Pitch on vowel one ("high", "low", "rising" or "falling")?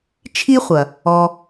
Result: high